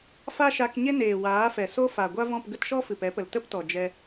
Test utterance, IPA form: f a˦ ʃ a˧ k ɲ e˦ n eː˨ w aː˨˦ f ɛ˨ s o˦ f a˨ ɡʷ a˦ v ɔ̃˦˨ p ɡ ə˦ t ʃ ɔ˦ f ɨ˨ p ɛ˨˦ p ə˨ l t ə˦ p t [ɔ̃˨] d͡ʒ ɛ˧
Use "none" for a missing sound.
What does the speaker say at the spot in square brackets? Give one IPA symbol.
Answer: ɔ˨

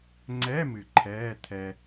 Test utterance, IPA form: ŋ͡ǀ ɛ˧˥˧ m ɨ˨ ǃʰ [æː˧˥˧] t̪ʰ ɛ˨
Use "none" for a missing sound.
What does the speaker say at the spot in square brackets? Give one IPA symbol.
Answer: ɛː˧˥˧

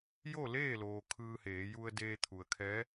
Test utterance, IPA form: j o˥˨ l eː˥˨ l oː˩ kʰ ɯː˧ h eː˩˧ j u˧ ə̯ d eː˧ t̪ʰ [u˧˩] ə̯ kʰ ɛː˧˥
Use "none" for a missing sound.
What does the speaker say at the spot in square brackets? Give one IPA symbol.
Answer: u˩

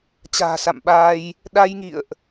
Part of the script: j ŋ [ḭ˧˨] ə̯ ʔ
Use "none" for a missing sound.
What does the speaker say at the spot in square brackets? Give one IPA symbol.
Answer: ḭ˧˨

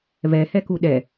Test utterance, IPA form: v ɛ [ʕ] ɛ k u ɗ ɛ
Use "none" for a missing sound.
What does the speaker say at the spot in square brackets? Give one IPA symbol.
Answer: h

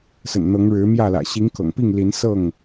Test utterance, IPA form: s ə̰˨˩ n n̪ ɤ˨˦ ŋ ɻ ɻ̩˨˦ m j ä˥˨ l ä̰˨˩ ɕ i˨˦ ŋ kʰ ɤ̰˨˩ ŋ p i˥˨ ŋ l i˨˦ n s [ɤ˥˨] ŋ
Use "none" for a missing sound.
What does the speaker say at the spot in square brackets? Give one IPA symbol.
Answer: ɤ˥˨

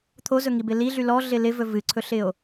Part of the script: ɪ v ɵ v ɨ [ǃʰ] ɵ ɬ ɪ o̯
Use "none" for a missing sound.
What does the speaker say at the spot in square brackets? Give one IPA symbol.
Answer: ǀʰ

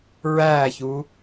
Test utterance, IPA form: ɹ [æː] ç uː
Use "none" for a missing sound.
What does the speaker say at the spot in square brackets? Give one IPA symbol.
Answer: æː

